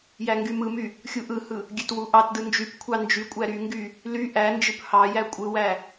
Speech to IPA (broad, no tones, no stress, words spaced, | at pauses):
jæŋɡymɯmy | xʲuʔɯhɯ | ɡʲøtwuʔɑtdɯ nd͡ʒypkʷʰɑ nd͡ʒykʷʼæ ɾyŋɡy | ly ʔænd͡ʒɯp hɑjæ kʷʼɯwæ